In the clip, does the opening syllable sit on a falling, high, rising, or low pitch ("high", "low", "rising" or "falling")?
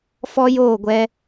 high